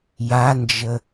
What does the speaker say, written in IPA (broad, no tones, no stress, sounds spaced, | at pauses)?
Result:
j a n d͡ʒ ə